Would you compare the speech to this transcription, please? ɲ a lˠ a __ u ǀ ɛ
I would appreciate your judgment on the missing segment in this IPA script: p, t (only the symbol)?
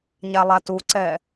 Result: t